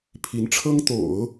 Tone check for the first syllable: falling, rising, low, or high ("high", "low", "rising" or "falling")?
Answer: rising